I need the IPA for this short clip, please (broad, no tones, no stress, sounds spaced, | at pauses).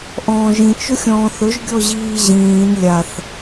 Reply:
ʔ ɔ̃ː ʒ ĩ t͡ʃ ʊ xʲ ɔ̃ː θ ɵ ʒ ɡʲ ɔ ʑ iː ʑ ĩː n lʲ a θ